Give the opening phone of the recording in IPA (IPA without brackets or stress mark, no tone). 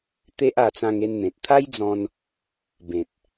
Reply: t̪